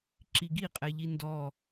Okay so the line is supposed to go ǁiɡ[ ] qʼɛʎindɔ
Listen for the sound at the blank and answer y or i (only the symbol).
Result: i